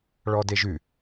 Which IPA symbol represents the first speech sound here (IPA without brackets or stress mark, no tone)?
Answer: ɭ